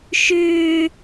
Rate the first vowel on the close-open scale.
close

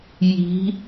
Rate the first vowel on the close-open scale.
close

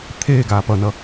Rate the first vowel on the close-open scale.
mid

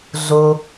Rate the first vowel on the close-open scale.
mid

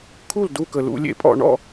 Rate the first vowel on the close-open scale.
close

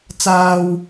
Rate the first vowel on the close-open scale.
open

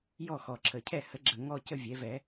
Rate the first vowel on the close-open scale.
mid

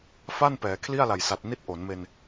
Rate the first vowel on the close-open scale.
open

